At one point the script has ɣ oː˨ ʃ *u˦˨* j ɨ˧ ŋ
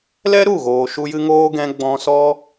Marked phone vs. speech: incorrect: u˧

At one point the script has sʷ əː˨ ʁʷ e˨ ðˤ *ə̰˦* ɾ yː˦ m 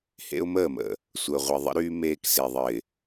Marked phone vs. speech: correct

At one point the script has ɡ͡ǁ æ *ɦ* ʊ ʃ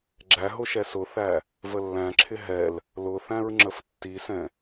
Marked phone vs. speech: correct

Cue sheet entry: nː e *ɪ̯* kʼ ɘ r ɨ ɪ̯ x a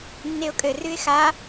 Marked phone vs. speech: incorrect: ʊ̯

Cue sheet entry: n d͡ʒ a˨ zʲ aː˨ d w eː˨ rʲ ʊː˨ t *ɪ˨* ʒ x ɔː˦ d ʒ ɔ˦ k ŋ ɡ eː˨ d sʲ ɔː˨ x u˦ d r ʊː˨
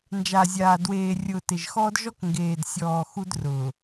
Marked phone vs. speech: correct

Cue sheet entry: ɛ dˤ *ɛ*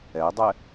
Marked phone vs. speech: correct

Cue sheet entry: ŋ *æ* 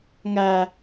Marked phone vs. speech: correct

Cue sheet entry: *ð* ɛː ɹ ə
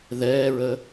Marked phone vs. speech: correct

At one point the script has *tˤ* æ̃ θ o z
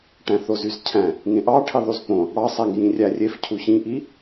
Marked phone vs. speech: incorrect: ʈ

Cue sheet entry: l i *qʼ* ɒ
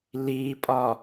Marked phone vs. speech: incorrect: pʼ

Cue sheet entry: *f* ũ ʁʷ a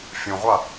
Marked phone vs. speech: incorrect: fʲ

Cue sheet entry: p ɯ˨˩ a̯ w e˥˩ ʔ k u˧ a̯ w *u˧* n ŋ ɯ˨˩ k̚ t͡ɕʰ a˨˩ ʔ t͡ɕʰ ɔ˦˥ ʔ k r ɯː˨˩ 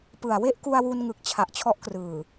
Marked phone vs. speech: correct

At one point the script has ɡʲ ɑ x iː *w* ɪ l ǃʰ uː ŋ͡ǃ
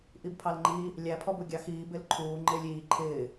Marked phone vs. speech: incorrect: b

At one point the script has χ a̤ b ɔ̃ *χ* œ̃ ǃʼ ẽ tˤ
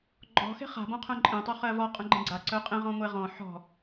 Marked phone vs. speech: incorrect: qʰ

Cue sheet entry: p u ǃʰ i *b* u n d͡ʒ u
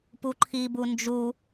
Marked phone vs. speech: correct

